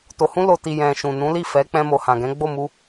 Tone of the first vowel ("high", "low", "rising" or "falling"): low